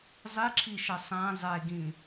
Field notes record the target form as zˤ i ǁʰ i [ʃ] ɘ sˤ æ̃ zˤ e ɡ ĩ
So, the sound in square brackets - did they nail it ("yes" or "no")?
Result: yes